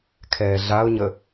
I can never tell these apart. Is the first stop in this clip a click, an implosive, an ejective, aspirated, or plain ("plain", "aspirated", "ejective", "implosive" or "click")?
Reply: aspirated